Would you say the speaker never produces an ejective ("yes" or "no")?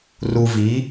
yes